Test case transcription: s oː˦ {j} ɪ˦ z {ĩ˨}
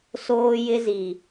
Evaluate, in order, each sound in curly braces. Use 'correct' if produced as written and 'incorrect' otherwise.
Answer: correct, incorrect

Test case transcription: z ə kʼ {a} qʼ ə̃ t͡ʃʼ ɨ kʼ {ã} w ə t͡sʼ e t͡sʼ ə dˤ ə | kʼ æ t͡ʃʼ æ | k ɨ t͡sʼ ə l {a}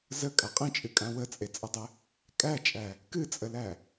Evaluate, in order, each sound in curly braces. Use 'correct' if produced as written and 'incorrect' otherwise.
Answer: correct, correct, incorrect

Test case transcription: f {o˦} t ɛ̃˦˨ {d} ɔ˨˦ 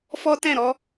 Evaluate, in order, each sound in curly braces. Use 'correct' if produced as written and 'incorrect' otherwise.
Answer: incorrect, incorrect

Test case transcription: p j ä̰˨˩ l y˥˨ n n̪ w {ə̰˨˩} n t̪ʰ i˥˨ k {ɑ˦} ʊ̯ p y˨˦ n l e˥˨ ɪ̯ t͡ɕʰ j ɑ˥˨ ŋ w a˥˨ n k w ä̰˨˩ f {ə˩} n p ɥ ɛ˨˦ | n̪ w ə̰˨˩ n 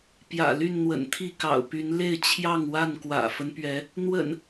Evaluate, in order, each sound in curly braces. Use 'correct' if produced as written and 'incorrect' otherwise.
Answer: correct, incorrect, incorrect

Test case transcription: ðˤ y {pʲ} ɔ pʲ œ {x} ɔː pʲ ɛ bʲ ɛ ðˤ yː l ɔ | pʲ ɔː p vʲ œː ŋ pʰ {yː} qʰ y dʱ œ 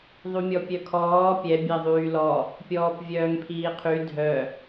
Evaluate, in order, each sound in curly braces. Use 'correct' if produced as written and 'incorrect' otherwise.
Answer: incorrect, incorrect, incorrect

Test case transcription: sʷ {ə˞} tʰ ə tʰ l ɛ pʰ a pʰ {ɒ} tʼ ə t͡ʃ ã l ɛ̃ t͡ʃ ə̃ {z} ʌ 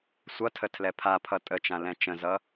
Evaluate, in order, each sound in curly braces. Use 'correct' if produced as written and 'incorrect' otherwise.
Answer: incorrect, incorrect, correct

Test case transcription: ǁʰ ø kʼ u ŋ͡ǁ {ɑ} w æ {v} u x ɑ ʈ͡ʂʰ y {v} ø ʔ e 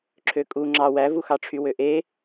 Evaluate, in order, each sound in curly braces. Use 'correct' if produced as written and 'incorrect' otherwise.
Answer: correct, correct, incorrect

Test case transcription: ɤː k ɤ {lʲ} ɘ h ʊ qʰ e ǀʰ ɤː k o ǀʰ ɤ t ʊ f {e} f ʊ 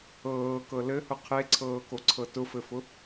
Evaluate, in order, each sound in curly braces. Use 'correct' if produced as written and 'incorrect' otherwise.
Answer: incorrect, incorrect

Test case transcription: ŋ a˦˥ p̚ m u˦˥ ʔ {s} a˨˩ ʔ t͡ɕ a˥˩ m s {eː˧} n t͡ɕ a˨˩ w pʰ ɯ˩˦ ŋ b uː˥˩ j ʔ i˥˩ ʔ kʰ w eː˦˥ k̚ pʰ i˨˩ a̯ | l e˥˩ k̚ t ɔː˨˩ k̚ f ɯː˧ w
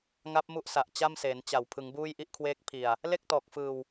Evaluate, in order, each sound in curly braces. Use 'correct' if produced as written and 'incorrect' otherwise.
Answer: correct, incorrect

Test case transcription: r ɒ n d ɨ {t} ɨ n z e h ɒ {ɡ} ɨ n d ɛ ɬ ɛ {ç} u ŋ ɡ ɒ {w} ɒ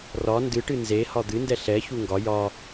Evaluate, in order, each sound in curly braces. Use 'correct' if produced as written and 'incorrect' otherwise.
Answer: incorrect, incorrect, correct, incorrect

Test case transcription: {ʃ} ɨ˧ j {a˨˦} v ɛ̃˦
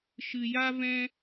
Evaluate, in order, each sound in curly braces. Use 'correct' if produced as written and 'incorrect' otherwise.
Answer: correct, incorrect

